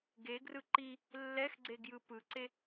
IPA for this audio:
ɡ e ɡ r ɯ ǃ i | lː ɛ x ɡ͡ǀ e ɡ j ɯ p ɯ ǀ e

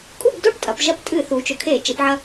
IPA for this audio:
kʼ u˥˨ b d o˥˨ ʈ tʼ ɐ˩˧ p ʒ ɐ˧ p tʼ ɨ˧˩˧ θ u˩˧ t͡ʃ ɵ˩˧ kʰ e˧˩˧ t͡ʃ e˩˧ p ʕ ɐ˧

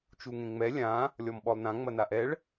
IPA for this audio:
t͡ʃ u ŋ ẽ ŋ͡m ɛ lʲ ã | lʲ ɔ m ɓ ɔ lˠ n ã ŋ͡m ɐ n a ʔ ɛ ɭ

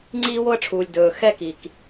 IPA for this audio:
ŋ͡ǀ iː˥ w o˥ ə̯ ʈ͡ʂʰ uː˩ lʲ d ɵː˩ x ɛ˥ k i˩ k

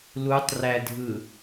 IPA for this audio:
l u tˤ r æ dʱ ɯ

